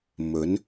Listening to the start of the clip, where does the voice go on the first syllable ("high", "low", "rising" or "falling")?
rising